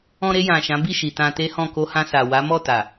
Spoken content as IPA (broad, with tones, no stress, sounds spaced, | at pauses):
ɔ̃˧ ɾ e˧ j ã˨ ʃ ã˨˦ b i˦˨ ʃ i˨ t ã˧ t e˦ h ɔ̃˦˨ k o˧ h ã˧ s a˨ w a˨˦ m ɔ˦˨ t a˨